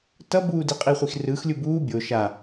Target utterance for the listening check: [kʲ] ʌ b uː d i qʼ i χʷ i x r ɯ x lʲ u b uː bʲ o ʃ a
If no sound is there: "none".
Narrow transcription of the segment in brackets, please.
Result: t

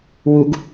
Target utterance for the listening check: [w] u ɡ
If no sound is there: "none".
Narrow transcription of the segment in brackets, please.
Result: w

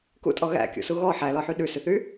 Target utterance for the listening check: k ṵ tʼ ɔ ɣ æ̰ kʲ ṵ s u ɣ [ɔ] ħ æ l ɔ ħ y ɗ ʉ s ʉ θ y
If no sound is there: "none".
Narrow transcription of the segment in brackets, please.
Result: ɔ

